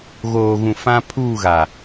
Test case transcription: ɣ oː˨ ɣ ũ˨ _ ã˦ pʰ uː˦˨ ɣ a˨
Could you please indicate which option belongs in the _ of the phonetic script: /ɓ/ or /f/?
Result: f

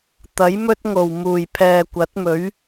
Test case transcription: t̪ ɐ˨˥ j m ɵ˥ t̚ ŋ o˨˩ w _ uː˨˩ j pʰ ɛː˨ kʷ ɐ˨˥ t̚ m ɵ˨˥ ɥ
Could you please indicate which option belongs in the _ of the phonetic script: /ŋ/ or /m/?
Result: m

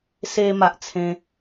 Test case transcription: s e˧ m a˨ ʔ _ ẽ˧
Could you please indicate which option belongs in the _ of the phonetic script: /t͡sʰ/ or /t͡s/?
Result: t͡sʰ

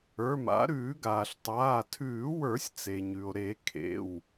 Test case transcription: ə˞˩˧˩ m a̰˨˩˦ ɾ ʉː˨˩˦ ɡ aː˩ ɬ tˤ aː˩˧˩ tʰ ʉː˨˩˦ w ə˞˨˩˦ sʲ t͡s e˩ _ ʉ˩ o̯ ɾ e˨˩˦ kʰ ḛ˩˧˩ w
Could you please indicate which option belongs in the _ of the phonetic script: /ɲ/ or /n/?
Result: ɲ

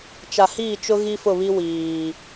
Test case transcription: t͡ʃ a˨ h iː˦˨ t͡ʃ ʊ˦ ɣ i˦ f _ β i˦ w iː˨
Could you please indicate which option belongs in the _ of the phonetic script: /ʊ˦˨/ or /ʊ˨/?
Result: ʊ˦˨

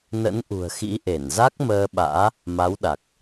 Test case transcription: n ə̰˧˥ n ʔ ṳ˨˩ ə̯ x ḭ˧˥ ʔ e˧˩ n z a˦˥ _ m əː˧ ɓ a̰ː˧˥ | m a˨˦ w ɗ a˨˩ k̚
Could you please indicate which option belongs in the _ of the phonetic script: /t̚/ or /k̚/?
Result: k̚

